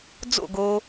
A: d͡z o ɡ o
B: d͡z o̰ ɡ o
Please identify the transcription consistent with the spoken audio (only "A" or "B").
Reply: B